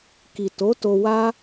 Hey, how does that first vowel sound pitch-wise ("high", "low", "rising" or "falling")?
low